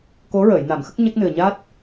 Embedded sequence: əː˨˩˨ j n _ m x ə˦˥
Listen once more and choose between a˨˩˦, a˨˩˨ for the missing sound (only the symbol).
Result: a˨˩˨